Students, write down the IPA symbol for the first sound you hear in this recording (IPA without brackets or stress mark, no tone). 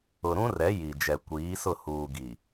ʊ